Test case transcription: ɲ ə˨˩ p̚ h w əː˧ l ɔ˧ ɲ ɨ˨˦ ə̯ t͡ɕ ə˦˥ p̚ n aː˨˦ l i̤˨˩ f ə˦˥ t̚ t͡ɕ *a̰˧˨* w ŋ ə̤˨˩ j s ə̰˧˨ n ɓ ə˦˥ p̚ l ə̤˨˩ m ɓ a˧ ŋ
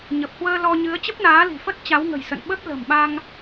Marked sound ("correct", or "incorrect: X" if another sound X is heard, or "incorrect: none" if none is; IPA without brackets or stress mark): incorrect: a˨˦